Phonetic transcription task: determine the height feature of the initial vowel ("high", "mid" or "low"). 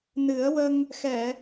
high